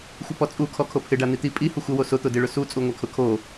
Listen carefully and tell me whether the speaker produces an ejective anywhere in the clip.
yes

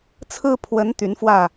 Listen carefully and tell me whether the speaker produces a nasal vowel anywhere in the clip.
no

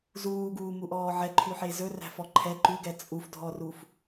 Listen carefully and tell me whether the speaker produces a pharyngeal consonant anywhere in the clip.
yes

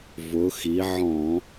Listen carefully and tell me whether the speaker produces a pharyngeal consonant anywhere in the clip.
yes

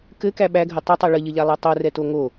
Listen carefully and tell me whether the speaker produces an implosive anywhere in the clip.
yes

